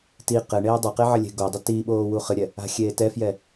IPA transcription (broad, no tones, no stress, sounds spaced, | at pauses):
t i q ɘ ɳ eː dˤ a q e ʕ ɘ lʲ e̤ ɡ o dˤ ɘ t i ɓ oː w u χ ɨ ɾʲ ɛ | a̤ xʲ eː t ɛ f j ɛ